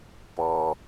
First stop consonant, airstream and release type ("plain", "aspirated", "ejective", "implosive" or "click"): plain